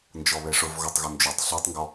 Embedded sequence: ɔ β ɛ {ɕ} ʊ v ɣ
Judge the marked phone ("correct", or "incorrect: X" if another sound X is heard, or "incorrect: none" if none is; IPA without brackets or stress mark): incorrect: ʂ